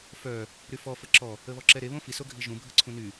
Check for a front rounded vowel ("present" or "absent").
present